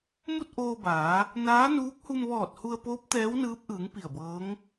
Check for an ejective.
absent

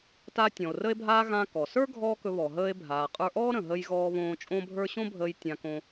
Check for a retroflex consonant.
absent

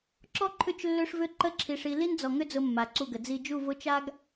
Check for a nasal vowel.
absent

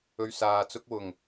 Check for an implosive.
absent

